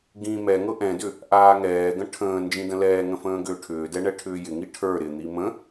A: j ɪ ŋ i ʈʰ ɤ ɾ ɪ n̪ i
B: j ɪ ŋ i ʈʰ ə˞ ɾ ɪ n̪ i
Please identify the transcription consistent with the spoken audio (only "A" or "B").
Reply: B